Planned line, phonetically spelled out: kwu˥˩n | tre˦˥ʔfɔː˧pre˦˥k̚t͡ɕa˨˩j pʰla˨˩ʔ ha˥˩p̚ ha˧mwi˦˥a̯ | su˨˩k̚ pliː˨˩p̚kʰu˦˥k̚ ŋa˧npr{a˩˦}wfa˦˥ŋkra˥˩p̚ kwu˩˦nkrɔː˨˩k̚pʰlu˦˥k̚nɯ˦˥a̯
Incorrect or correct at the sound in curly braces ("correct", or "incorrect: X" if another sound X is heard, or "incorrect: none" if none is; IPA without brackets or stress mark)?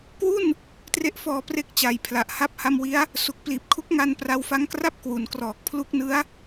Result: incorrect: a˧